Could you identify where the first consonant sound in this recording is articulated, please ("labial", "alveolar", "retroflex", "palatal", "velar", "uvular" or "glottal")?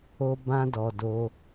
labial